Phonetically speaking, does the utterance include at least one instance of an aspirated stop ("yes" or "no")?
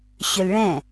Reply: no